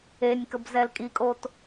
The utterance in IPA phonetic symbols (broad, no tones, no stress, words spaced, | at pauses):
enʲkəb zɛlkʼikʼot